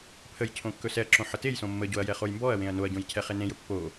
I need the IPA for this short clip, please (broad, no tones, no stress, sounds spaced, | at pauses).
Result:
pʰ ə j cʰ õ kː ɵ s ɛ ɐ̯ ǁ õ ħ ə t e j s õ mː ə ɟ o ɐ̯ j ɛ χ o j m b ɔ ɐ̯ w ẽ ɐ̯ n o ɐ̯ ɟ õ j cʰ ɛ χ e n ẽ j ɵ pː o